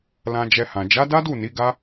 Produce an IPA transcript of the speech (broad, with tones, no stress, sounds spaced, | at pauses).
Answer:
l ã˧ d͡ʒ ɛ˧ h ã˨ d͡ʒ a˨˦ d a˦ d u˦˨ n i˨˦ ɡ a˦